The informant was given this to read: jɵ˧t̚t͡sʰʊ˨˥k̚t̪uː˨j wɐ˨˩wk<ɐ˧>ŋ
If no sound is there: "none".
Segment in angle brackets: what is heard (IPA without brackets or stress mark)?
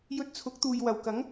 ɐ˨˥